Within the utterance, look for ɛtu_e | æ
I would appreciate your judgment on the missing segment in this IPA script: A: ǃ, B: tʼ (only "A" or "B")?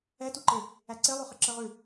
A